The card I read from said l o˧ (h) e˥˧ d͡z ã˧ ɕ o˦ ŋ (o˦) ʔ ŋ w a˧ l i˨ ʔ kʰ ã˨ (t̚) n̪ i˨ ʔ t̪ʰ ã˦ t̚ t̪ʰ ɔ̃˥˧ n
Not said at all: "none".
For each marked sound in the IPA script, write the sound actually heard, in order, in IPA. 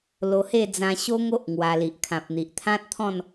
h, o˦, p̚

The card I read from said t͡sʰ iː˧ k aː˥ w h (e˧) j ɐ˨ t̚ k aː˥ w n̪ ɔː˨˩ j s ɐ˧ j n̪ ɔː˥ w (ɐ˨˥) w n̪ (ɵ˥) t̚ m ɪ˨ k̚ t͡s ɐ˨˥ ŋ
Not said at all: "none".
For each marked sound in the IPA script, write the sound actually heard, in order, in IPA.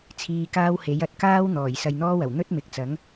e˨˥, ɐ˨˩, ɵ˥

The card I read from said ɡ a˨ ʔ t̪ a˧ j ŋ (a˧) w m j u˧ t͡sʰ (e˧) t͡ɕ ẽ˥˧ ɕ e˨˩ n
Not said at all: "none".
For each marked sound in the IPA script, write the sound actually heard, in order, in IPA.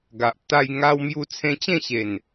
a˧, ẽ˧

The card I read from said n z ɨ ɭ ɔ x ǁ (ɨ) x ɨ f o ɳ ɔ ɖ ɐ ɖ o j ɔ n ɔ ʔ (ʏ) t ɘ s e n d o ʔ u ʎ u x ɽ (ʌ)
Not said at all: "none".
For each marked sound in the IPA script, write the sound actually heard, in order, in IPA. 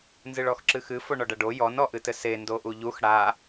ɨ, ɨ, a

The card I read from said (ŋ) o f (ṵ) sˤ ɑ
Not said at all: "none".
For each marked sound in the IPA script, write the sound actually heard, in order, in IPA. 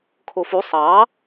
kʰ, u

